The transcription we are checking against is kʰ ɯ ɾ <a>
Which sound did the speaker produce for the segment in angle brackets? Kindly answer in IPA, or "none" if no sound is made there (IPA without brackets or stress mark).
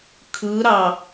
ɑ